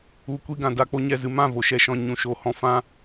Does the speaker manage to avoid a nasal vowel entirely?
no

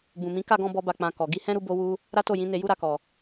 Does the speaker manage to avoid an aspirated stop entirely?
yes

